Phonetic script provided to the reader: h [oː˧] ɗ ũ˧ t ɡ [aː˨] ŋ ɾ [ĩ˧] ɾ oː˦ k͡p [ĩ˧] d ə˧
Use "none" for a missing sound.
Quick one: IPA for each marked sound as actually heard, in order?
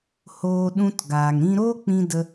oː˧, aː˨, ĩ˧, ĩ˧

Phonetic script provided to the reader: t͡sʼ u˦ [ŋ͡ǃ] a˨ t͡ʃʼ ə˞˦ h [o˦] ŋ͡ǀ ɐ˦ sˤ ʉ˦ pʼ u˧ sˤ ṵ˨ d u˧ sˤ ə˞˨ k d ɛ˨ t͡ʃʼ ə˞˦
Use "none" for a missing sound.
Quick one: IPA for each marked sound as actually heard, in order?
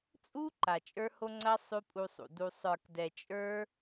ǃ, o˦

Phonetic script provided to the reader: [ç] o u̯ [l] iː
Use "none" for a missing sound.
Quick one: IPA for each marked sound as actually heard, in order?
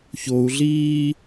ç, ɮ

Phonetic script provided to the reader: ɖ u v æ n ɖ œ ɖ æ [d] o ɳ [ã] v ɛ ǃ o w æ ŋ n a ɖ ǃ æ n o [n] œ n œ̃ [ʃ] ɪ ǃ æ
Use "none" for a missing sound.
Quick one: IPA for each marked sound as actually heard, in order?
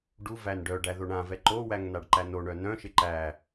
ð, ã, ɳ, ʃ

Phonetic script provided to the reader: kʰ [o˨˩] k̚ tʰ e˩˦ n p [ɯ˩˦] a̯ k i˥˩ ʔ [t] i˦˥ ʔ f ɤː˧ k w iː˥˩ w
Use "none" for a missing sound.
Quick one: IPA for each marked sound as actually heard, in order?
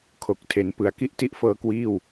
o˨˩, ɯ˩˦, t

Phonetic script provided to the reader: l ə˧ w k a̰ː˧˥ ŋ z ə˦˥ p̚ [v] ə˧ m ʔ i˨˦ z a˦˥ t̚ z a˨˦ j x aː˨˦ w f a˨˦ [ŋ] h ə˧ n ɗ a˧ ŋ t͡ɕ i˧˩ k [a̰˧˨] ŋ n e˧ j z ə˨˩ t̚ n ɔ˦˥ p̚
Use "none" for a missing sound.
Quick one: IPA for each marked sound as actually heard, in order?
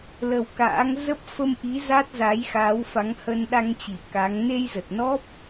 f, ŋ, a˨˦

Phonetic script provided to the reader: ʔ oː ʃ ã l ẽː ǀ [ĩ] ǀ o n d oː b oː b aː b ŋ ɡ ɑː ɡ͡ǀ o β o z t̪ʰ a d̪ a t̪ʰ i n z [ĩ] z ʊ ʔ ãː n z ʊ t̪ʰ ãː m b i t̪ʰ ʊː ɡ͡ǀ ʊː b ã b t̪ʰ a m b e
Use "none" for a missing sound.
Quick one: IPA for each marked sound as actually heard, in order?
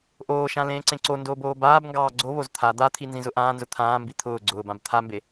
ẽ, ĩ

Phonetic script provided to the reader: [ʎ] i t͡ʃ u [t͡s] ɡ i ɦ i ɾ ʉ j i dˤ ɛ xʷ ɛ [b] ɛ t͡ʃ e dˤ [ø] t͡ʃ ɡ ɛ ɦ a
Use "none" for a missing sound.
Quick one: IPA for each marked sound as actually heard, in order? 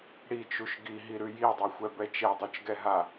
ɽ, ʃ, b, ø

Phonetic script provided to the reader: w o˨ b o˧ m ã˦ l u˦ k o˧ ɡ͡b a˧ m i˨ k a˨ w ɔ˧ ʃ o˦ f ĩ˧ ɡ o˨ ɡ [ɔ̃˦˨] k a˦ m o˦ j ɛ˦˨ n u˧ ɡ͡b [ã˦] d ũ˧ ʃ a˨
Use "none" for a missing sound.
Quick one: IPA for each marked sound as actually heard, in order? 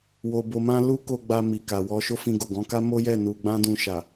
ɔ̃˨˦, ã˦

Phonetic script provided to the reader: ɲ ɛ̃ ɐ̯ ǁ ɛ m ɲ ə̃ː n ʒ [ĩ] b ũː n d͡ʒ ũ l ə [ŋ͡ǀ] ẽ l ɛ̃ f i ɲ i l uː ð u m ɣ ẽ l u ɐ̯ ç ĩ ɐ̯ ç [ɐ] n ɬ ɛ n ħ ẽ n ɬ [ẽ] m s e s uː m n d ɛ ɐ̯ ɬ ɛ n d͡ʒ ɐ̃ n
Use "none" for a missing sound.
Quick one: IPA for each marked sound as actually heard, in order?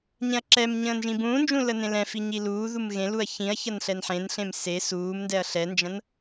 ĩ, n, ɐ, ẽ

